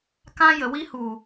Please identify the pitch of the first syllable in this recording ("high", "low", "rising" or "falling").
high